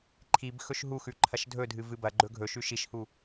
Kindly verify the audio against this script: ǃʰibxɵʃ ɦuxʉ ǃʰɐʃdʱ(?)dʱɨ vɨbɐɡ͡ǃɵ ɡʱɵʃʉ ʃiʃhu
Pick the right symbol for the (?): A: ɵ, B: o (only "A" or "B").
A